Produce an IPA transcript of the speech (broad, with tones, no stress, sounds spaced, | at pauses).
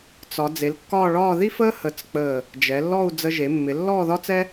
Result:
t͡s ɒ˩˧ d͡z e˩˧ l kː ɒː˥˧ ɭ ɒː˥˧ ð i˥ f əː˥ h ə˧˩ t͡s k͡p əː˧˩ | d͡ʒ ɛ˩˧ lː ɔ˥˧ u̯ d͡z ə˧ ʒ e˩˧ mː ɪ˩˧ lː ɔː˥˧ ð ɒ˥ t͡s ɛ˥